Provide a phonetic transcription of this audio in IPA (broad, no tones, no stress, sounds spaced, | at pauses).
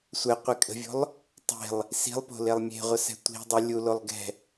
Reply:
sʷ ɛ qʷ i kʼ ə̤ vʲ o̤ lˠ | tˤ e̤ lˠ | s i̤ lˠ p o̤ l e lˠ mʲ e̤ ʁʷ ə s ɛ̤ tʷ i̤ dˤ e lʲ u l o lˠ ɡ ɛ̤